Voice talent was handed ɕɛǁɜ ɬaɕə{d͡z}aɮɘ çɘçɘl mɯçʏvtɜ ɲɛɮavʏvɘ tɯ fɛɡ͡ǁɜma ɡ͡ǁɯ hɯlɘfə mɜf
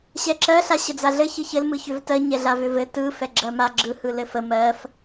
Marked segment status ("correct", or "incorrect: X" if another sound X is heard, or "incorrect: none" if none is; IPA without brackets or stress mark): correct